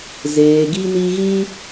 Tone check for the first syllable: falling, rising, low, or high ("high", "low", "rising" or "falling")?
low